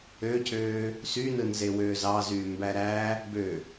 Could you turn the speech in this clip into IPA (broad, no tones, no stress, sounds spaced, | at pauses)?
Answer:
ø cʰ øː | s y n ɯ n z e w øː z ɑ z yː m b æ ɾ æ | b ø